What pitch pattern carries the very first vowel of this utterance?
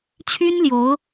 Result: high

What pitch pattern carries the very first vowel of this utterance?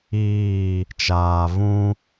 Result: falling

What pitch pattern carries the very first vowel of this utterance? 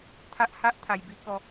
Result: high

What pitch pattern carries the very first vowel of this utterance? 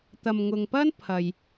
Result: low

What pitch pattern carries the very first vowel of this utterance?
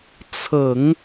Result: low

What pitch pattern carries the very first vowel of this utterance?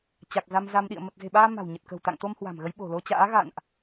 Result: low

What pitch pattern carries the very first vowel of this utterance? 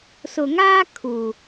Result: low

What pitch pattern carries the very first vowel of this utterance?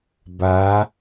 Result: rising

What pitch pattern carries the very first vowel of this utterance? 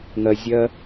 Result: low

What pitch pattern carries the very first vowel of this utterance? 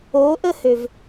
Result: rising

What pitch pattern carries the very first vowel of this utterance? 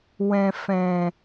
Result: low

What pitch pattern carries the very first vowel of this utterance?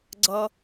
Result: high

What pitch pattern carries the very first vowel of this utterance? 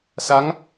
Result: rising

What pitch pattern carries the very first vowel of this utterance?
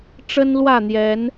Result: high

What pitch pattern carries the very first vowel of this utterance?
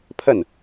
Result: falling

